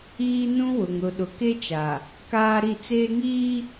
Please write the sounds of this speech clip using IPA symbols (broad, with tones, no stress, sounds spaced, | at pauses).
iː˦ n ũ˦ w ʊ˨ ŋ ɾ ʊ˨ ɗ ʊ˨ k e˦ t͡ʃ a˨ | k aː˦ ɾ i˦˨ t͡s eː˦ ŋ iː˦